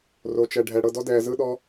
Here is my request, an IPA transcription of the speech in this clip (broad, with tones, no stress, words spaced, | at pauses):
ro˧t͡ʃɛ˧ɖʱɛ˧ ɽɤ˧dɔ˦dɛː˧ zɯ˦ɗɔ˦